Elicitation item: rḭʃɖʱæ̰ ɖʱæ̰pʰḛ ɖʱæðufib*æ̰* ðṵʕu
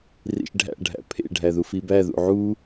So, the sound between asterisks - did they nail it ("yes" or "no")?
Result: no